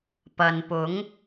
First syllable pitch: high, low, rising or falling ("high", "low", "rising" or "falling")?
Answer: low